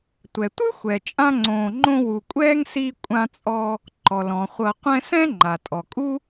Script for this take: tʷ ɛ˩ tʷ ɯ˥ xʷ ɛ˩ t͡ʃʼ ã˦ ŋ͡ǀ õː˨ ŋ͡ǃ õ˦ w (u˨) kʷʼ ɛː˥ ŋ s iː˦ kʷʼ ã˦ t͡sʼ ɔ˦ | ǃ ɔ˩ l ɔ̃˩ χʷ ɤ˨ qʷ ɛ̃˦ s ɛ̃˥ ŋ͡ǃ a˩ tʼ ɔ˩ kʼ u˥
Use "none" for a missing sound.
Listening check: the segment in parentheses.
u˨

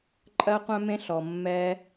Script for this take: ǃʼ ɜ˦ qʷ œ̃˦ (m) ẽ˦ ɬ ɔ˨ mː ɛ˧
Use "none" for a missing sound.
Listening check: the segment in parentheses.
m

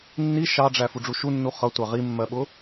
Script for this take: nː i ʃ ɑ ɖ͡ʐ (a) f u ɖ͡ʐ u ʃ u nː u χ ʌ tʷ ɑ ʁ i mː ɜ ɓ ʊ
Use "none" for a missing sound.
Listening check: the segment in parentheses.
æ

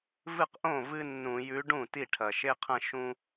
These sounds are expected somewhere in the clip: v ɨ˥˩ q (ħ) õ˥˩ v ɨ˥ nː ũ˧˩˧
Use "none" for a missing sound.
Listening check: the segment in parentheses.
ʔ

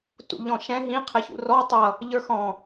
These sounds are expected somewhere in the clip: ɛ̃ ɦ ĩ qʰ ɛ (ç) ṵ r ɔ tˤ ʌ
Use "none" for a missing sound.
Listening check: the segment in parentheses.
ç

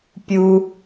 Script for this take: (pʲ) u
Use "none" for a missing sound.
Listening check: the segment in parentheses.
pʲ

